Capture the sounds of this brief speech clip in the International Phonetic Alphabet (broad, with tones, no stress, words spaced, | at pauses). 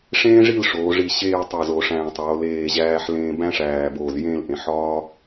ʂẽː˥ʐi˥˧lʂoː˩˧ʐi˧˩ ɕeː˥˧ tˤo˧˩zo˩˧ ʂæ̃˧˩tˤoː˩˧ leː˧˩ʑæː˧ħlẽː˧ bæ̃˥ʂæː˧˩boː˧˩z jẽ˥˧lʔẽ˩˧ħɒː˥